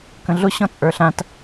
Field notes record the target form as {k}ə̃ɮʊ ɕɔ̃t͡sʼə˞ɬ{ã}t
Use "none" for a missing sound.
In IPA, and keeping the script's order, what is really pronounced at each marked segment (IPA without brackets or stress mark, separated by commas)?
k, ã